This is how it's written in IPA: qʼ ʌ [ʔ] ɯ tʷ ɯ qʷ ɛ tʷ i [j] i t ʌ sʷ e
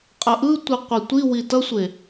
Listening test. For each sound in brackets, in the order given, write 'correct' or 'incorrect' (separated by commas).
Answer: correct, incorrect